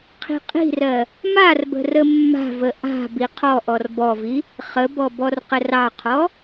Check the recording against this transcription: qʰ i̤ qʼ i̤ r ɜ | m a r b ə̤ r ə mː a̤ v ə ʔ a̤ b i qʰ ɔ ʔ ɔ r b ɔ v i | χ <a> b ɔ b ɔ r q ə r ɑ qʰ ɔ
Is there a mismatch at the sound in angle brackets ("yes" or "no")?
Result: yes